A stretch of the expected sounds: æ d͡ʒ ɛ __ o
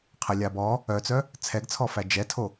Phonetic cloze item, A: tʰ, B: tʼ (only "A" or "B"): A